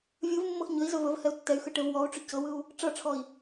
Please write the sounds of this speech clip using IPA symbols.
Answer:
vʲ ɯ v mː ɤ x ɲ ɵ i̯ z ɵ v ɵ v h ɛ u̯ tː ɛ y̯ x ɯ ʈ e v w ɔ u̯ ʈ͡ʂ ɵ c ɤ w ɯ u̯ | ʈ͡ʂ ɤ ʈ͡ʂʰ ɔ i̯

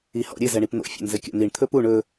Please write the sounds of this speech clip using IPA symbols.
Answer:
i h ɔ̰ ɾʲ ɘ z ɛ ɳ i p n̪ o̰ fʲ ɔ̰ n z ɘ kʲ ɔ̰ n̪ i ɳ t̪ʰ ɵ p u ɳ ɵ

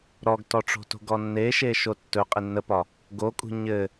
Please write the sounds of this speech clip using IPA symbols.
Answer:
ɾ ɔ ɡ t ɔ ʈ͡ʂ o̤ t o̤ ɡ ɔ nː e ʃ e ʃ o tː ɵ qʼ e nː ə p ɒ | ɡ o kʼ ṳ ɲ ɘ

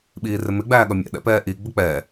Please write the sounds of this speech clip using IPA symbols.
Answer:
ɓ iː r ɪ m ɪ ɡ͡b æː ɠ ʌ mʲ ɛ̰ ɗ ɛ̰ p ɛː ʔ i ɡ͡b ə k͡p ɛ

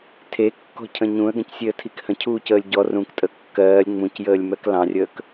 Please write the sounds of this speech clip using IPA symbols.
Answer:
tʰ e kː ɔ̤ cʰ ə̃ ɲ ũ ə̯ ɡ ə̃ c sʲ e ə̯ tʰ i k h ə̃ cʰ uː c əː lʲ ɟ ɔ r ũ k tʼ ə kː ɜː lʲ ŋ͡m ũ c j əː lʲ m ɜ k l ɑ̃ rʲ əː k

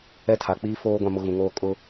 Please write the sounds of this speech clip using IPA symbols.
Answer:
ɛ˦ tʰ a˨ k͡p iː˦ f oː˦ ɡʷ ã˦ m ʊ˦ ɣ ũ˨ ŋ oː˦ kʼ ʊ˦

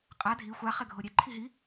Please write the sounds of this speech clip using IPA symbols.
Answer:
qʼ a dʱ i xʷ a χ ɛ ɡʱ o ɾʲ ɛ ǃʰ i ɦ i

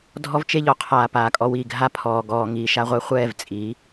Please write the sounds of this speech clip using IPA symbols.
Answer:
dʱ ɔ˦ v t͡ʃ e˦ ʎ ɔ˨ qʰ aː˨ p aː˨ kʼ ɔ˧ w iː˦˨ ɡʱ a˦ pʰ ɔː˨ ɡ ɔː˨ ŋ iː˨ ʃ a˧ ʁʷ ɛ˧ χʷ ɛː˦˨ v t͡sʼ iː˨˦

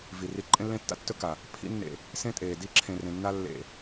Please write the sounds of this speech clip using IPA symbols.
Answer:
v i˨ r i˧ ǃʼ ẽ˦ lː ẽ˦ tː a̰˦ tː ɵ˦ k a˨ | pʰ ḭ˦ nː ḛ˧ | s ẽ˦ tʼ eː˨ d i˧ ǁʰ ẽ˨ r ẽ˨ nː a˧ lː ḛ˧

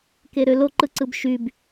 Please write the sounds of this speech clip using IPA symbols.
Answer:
k e ɾ ø l o ǃ ɯ ǀ ɯ b ʃ y b

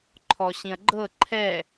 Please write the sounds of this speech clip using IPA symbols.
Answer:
ǃʰ ɔ ɕ ĩ ɐ̯ ɡ͡ǃ ɤ ǃʰ ɛ

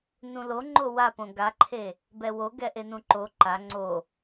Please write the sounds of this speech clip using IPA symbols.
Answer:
n ũ l o ŋ͡ǃ o w a p õ ɡ a ǃʰ e | b ɛ w o ɡ ɛ ʔ e n ũ ǃ o ǃ a ŋ͡ǀ o

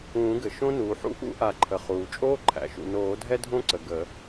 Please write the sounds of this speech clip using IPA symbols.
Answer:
ũː˨˩˦ ɡ ɘ˩ ʃ õ˥ n uː˩ ħ ṵ˥ ʔ ṵ˥ ʔ a˨˩˦ ǃʰ ə˩ χ uː˩ t͡ʃʼ oː˥ ǃʰ æ̰˩ ʃ ṵ˩ n oː˨˩˦ dʱ ɛ˥ dʱ õ˥ ǀ ə˩ ɡ ə˨˩˦

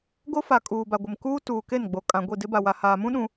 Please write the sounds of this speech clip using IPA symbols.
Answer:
ɡ o˦ f a˨ kʼ uː˨ b a˨ ɡʷ ɪ˨ m k uː˦ t uː˨ k e˦˨ n ɡ͡b o˨ kʼ ã˨ ɡʷ i˦˨ d ɪ˦ b a˨ w a˨ h aː˨ m ũ˦ ɗ ũ˨

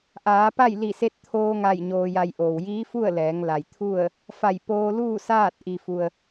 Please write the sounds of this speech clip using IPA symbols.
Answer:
ʔ aː˩˧ p a˥˨ j l i˧˩ s e˧ t̚ t̪ʰ oː˧ ŋ a˧˩ j ɲ oː˧ j a˧ j ʔ oː˩ w j iː˧˥ f u˥˨ ə̯ l ɛː˩˧ ŋ l a˩ j t̪ʰ u˥˨ ə̯ | f a˧˩ j p oː˧ l uː˥˨ s aː˥˨ t̚ ʔ i˩ f u˩ ə̯

